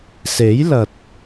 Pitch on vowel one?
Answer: rising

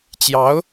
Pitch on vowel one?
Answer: rising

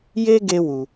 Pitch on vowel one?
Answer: high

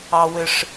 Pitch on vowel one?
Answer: high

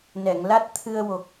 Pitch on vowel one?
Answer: low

